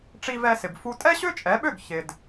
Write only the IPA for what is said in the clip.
ʈ͡ʂi˧vɛ˧sɪ˩b fu˧ tʼɛ˥ɕø˥t͡ʃʼɛ˩˥ɓø˥˩ɡ çɪ˩d

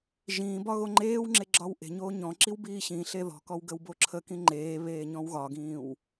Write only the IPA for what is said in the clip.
ʒĩːbɒ ɣoŋ͡ǃeːwŋ͡ǁe ɡ͡ǁɒwʔe̤ɲoː ɲɔ̃ǁiw biːɕĩɬe ðɔ̤kɔw ɡəwboǁʰəkĩ ŋ͡ǃeː βeːɲɔ̃wɣɒɡĩːw

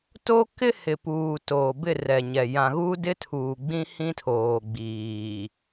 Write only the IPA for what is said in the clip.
to˦kɪ˦ hɪ˨ puː˨ toː˨bɪ˦˨rɛ˨ɲɛ˨ jã˨ɣu˦ dɪ˦tʰuː˨ɡ͡bĩ˦hĩ˦ tʰoː˨ɡ͡biː˨

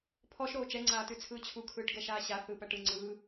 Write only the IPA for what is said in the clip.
pʰɔʃɾoː t͡ʃɛŋ͡ǀaːtʉt͡sʰɯː t͡ɕʰukʰɯːʈɡɛʃaː ɕa θɯːpæʈɯ ŋ͡ǀɯː

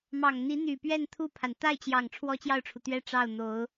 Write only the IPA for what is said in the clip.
mɑ˨˩ŋn̪i˧˥n̪y˨˩pɥɛ˥˧n t̪ʰu˥˩pʰa˩n t̪a˥˩ɪ̯t͡ɕjɑ˨˩ŋ ʈ͡ʂʰwɔ˥t͡ɕjɑ˥˩ʊ̯ʈ͡ʂʰu˩t̪ɥɛ˥ ʈ͡ʂɑ˥˩ʊ̯ n̪o˧˥ʊ̯

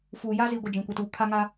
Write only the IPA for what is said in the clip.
fuː˨ja˦zi˨ ɡʷɪ˦˨d͡ʒĩ˨kʷi˨tuː˨ kʰa˦ ŋa˦

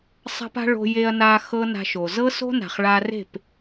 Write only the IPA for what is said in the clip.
sˤa̤˦pa̤˦ ɭo̤˧ je˧ɐ̯na˧ xɤ˦na̤˧ʃo˨ zɤ˦so̤˦na̤˨χ ɭa˧re̤˦˨p

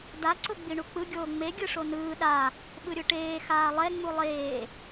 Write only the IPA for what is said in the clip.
da ǀoɡ͡biɳuk͡pɯ ɡʲoːŋ͡me ɡʲɯʂonɯː ɗa | ɓɯɾʲɯʈeː xaːlˠɛ ŋ͡mulˠeː

